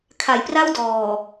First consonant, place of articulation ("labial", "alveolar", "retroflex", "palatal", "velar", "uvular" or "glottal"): velar